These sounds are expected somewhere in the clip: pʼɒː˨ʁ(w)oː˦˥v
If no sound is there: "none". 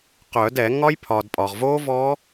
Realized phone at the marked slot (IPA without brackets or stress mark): v